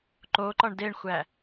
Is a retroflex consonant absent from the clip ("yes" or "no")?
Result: no